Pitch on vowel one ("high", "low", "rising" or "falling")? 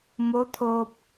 rising